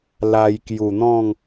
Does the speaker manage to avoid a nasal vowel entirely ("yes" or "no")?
no